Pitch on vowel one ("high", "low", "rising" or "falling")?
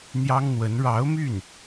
high